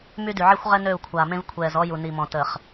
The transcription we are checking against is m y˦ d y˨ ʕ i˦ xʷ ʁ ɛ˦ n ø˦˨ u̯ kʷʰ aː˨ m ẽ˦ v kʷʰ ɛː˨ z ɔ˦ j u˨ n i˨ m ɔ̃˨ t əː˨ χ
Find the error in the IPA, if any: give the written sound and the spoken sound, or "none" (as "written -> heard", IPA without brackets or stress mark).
none